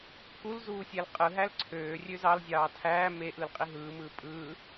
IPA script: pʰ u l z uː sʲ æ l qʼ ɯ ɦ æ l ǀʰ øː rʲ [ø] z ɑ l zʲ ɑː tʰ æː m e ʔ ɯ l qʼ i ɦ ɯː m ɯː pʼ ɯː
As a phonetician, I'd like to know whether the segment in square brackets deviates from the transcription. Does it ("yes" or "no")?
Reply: no